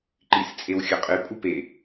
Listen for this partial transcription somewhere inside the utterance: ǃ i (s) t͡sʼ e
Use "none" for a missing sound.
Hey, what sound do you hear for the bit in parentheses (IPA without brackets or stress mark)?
s